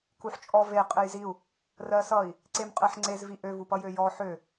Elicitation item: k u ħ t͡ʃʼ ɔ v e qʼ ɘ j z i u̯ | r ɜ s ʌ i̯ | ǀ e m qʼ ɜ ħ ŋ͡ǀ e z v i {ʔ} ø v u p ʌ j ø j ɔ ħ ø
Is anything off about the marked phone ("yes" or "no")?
no